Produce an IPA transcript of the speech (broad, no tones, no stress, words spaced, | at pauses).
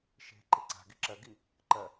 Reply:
ʃe̤ ǃeǀa̤ɡi ǁɜɡi | ǃɜ